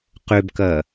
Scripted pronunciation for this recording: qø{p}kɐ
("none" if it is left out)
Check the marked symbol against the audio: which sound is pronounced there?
b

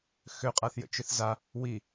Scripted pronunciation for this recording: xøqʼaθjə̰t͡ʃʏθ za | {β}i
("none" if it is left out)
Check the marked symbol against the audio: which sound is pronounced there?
w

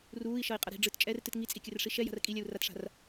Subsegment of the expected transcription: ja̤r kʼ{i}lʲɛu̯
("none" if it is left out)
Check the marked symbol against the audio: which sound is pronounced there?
i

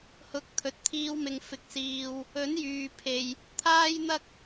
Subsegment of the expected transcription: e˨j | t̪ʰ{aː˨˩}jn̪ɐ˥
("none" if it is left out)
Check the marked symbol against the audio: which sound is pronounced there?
aː˥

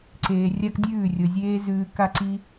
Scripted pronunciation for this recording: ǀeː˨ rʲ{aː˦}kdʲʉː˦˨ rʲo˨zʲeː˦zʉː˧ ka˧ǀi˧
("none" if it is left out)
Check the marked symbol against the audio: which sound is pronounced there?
a˦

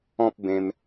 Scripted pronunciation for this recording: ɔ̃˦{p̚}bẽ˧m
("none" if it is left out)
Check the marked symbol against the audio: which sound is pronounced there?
p̚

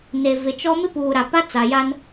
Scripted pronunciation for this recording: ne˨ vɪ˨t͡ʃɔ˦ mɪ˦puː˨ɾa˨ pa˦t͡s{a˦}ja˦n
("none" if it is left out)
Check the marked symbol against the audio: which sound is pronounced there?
a˨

